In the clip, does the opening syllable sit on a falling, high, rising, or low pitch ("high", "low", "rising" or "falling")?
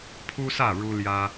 high